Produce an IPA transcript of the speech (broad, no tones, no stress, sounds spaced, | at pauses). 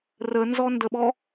r ə n z ɔ n d ə ɓ ɔ